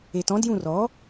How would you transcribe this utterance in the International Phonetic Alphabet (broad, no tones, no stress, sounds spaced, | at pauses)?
e t ɔ̃ d j ũ r ɔ